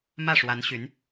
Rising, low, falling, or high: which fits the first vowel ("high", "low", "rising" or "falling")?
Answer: falling